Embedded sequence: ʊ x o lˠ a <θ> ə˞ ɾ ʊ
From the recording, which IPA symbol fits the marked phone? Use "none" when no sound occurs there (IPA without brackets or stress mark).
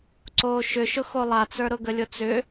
t͡s